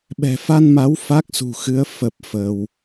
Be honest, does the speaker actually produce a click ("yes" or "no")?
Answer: no